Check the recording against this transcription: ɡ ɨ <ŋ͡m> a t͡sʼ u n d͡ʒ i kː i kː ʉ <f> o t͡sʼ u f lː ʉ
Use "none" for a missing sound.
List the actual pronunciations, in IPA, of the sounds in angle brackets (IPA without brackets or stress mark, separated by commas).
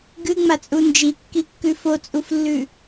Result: ŋ͡m, f